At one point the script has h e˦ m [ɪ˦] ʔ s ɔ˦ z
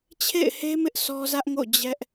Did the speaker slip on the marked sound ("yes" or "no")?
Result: no